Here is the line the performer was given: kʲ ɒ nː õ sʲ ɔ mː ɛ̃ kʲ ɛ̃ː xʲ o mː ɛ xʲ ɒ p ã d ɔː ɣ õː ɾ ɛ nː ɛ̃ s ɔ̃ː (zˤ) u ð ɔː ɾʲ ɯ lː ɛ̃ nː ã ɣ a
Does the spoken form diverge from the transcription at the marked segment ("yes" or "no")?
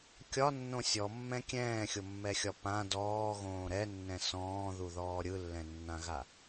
yes